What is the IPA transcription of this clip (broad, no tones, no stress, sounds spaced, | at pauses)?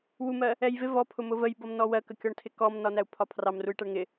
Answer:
w u m ɜ | ɛ j v ɪ v ɔ pʰ ʊ m ʊ v ə j b ʌ m n ɔ w ɜ k ə kʲ ɔ ɳ tʰ ɪ k ɔ m n ɒ n æ u̯ pʰ ɒ pʰ r ɑ m r u j ʈ æ ɳ ŋ ɪ